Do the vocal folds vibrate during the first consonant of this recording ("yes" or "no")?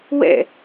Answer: yes